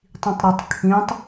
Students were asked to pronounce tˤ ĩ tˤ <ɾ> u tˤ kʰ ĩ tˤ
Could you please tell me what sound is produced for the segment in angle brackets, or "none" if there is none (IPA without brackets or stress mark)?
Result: ɾ